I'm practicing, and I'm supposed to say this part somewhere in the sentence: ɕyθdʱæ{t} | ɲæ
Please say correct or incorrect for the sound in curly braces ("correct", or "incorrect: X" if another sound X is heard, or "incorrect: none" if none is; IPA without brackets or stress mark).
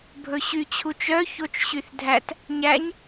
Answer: correct